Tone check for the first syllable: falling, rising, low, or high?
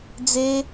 high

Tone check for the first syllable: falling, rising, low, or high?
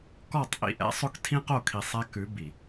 falling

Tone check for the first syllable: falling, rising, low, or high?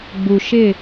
low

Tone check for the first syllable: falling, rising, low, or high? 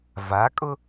rising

